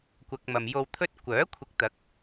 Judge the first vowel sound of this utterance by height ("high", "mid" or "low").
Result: low